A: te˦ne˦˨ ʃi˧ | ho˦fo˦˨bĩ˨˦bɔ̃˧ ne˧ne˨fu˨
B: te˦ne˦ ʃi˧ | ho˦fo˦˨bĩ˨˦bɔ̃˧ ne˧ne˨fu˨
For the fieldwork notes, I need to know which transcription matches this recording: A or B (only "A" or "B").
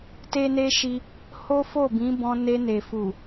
B